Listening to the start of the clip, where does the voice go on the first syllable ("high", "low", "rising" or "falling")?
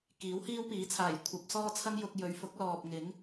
rising